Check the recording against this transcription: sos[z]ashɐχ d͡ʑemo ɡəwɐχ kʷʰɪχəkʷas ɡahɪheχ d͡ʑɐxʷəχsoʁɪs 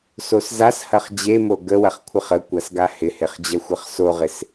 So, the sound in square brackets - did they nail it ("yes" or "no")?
yes